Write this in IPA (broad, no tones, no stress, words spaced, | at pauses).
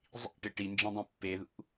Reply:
zˤḭʈɪ ʈind͡ʒĩdˤĩ pːeðṵ